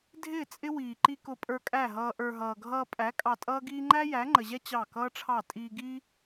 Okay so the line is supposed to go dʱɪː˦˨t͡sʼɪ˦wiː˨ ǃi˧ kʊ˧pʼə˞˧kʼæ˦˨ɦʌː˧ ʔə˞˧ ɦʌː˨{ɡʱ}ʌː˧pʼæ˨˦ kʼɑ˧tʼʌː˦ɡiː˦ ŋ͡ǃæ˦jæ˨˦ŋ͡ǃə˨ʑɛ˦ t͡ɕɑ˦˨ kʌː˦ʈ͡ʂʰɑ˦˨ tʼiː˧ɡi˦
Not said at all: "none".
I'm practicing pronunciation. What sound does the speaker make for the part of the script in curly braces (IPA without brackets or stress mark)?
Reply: ɡʱ